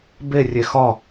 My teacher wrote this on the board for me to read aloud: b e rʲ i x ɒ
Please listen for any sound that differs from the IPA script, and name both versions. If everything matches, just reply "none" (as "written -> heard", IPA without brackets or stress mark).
i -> e